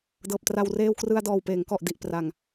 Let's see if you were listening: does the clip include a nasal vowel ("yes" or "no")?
no